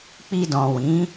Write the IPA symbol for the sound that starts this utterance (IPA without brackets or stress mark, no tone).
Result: k͡p